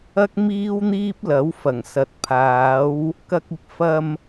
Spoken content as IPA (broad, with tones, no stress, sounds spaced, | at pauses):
ɐ˥ k̚ m iː˥ w n̪ iː˥ p̚ l ɐ˨˥ w f ɐ˨˩ ŋ s ɐ˨ t̚ pʰ aː˨˥ w | k ɐ˧ k̚ ɪ˨ k̚ f ɐ˧ m